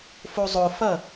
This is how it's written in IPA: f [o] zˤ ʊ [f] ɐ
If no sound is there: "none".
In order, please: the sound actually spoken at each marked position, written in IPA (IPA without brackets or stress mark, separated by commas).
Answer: o, f